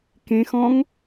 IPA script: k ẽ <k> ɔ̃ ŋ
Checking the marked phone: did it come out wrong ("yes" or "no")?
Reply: yes